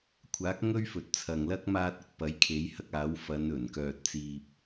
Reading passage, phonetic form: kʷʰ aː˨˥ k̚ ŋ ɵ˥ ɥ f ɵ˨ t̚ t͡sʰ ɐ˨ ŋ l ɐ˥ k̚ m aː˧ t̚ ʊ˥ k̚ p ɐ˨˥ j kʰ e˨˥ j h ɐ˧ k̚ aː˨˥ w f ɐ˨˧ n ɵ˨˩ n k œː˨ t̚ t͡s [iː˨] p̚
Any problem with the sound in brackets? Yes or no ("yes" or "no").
no